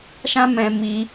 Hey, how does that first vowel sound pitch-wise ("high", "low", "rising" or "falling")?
high